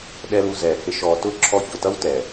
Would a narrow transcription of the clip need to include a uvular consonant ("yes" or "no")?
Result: no